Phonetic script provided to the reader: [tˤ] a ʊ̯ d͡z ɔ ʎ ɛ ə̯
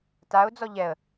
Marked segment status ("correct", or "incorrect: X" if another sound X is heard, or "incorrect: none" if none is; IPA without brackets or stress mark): incorrect: t